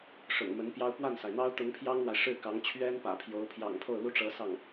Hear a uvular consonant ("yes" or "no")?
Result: no